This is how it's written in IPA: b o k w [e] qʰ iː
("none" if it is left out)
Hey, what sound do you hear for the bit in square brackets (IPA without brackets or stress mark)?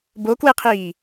e